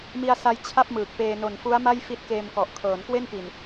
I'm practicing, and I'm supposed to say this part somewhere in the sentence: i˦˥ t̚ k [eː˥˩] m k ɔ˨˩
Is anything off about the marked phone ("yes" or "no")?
yes